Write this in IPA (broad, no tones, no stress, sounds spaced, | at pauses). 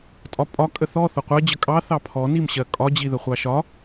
tʼ ɒ pʼ ɒ kʼ ə θ ɔ θ ʊ qʷ ɜ d͡ʑ ə kʼ ɑ θ ɑ pʰ ɔ n i m ɕ ɜ kʼ ɒ d͡ʑ i ð ə χʷ ɑ ʃ ɒ